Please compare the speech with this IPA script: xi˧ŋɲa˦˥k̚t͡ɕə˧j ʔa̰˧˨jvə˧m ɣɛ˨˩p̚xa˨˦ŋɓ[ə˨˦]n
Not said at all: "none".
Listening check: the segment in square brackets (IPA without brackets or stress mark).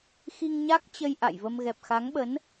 ə˨˦